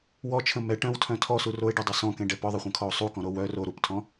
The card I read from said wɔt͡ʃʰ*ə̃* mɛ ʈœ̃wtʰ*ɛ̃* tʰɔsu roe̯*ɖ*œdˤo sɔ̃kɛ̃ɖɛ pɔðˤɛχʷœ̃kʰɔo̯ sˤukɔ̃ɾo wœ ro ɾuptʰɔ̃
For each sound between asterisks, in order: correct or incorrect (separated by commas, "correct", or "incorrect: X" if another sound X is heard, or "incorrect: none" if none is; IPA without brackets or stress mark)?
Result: correct, incorrect: œ̃, correct